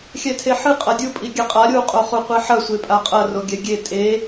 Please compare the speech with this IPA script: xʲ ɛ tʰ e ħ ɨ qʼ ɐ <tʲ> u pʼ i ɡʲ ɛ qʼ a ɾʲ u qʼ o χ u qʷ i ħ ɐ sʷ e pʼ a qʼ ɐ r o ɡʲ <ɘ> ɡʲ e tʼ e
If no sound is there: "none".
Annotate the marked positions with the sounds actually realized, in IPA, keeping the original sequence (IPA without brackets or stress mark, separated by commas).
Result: dʲ, ɛ